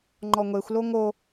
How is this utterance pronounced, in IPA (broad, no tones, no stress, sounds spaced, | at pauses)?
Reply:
ŋ͡ǃ ɔ ŋʷ e xʷ l o ŋ o